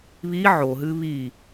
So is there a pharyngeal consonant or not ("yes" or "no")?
yes